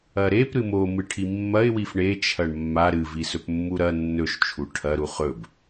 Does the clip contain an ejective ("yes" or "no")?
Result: no